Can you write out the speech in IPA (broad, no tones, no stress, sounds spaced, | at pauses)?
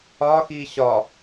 ɒ x i ɕ ɒ